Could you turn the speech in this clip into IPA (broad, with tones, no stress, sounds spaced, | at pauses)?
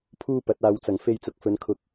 pʰ uː˥ p ɐ˨˥ t̚ aː˨˧ w t͡s ɐ˨˩ ŋ f e˧ j t͡s ʊ˨ k̚ f ɵ˨˧ n kʰ ʊ˧ k̚